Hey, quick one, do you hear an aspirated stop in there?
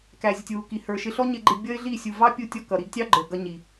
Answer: no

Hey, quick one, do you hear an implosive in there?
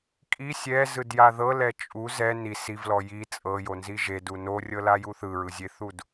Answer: no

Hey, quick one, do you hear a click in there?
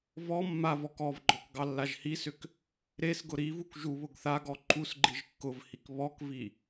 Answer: yes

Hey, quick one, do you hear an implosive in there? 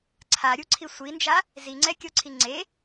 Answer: no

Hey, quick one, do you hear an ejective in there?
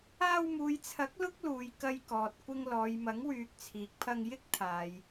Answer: no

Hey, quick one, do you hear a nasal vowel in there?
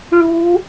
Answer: no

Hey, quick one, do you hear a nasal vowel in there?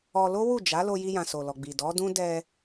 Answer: yes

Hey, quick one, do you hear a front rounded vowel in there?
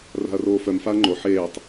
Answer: yes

